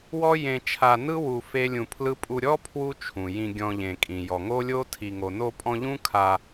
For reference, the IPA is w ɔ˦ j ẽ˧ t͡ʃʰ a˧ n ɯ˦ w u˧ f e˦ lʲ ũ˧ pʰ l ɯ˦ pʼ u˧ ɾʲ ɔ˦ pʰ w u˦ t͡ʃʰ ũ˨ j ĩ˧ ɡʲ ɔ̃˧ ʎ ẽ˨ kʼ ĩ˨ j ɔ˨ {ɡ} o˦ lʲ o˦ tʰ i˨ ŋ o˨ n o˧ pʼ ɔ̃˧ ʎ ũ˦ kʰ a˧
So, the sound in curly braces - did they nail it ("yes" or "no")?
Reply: no